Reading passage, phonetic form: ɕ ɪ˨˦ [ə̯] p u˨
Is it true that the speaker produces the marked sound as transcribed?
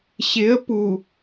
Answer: yes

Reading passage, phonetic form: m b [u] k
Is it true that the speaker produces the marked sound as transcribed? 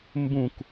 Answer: no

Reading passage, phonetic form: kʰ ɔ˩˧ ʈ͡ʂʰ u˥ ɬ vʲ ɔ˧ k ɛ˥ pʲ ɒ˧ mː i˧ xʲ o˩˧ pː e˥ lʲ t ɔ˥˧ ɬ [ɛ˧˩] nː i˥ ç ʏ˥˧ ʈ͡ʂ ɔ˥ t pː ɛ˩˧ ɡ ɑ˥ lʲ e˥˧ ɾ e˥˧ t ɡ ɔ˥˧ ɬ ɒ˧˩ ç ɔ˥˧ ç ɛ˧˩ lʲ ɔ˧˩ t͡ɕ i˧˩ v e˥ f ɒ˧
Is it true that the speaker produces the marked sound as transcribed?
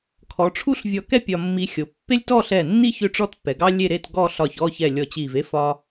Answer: yes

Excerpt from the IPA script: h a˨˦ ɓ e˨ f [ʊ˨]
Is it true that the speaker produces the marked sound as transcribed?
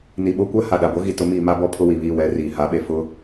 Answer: no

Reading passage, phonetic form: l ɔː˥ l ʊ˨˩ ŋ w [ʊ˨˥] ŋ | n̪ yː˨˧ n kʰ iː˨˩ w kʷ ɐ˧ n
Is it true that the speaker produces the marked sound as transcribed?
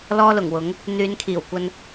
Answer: yes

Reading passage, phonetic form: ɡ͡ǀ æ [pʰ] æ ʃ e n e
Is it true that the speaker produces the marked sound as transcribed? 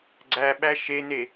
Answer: no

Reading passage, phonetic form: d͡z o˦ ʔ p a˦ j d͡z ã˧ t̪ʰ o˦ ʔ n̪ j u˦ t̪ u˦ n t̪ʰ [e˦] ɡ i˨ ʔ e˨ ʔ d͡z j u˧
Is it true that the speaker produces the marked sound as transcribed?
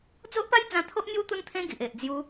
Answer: no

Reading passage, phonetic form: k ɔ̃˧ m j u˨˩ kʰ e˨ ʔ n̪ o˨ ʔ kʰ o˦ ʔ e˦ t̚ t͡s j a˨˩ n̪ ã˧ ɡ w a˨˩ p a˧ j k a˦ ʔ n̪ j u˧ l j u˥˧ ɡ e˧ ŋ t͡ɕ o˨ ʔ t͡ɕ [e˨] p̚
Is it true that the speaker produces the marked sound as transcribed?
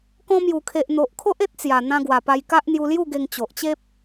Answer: no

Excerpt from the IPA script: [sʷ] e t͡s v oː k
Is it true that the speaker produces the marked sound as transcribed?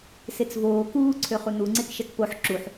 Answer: no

